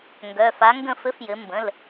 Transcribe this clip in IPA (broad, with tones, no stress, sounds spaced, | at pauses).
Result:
ŋ ɡ œ˩˧˩ f a˨˥ ŋ ɡ ə̃˥˨ f ɘ˨˥ f j ɘ˩˧ m b ə̃˩˧˩ l